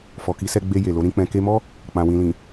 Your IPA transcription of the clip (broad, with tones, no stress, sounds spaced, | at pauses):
f ɔ˨ k i˨˦ s ɛ˧ ɡ͡b e˧ j e˨ l o˨˦ ɾ ĩ˧ k͡p ɛ̃˧ k e˧ m ɔ˦ | k͡p ã˨ w ĩ˨ l ĩ˨